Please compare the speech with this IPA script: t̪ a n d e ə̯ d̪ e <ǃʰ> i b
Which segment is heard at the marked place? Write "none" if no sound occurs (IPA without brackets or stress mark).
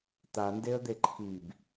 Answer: ǃʰ